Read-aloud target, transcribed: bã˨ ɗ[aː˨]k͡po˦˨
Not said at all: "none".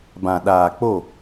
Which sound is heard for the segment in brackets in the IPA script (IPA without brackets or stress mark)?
aː˨